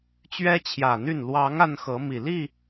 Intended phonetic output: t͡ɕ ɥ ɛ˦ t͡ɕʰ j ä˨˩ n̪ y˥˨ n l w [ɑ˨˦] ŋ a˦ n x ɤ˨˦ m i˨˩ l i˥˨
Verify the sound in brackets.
correct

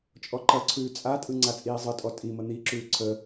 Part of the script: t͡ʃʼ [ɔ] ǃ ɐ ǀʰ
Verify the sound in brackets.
correct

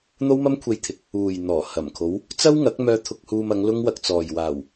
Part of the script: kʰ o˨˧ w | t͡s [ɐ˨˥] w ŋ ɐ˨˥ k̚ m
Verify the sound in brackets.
incorrect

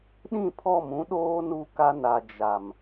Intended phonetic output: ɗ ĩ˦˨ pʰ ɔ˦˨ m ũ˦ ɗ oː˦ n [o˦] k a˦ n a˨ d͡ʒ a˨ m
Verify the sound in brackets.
incorrect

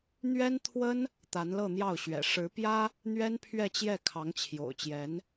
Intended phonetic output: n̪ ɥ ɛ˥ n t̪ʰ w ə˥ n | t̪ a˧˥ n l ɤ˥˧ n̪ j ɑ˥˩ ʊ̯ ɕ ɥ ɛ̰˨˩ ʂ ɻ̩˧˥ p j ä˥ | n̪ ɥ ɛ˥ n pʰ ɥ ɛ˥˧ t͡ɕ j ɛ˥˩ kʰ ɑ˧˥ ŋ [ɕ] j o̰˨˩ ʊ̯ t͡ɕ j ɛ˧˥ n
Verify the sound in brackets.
incorrect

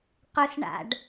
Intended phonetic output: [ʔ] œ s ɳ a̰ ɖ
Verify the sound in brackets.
incorrect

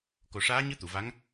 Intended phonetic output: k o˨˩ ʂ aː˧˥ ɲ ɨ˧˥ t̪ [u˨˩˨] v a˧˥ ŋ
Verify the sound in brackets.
correct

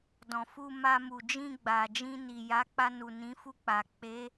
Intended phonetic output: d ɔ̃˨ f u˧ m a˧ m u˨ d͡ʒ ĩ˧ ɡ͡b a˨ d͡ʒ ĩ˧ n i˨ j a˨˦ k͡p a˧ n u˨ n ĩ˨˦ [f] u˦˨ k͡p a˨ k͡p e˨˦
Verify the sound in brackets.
correct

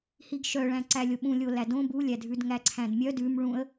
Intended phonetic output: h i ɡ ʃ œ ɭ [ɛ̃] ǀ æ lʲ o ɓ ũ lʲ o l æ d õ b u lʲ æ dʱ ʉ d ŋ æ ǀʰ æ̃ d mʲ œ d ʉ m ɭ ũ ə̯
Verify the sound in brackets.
incorrect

